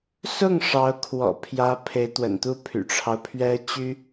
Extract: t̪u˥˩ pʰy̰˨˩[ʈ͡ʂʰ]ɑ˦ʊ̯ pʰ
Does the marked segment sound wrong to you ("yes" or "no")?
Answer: no